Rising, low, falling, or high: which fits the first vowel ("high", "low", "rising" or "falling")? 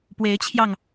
rising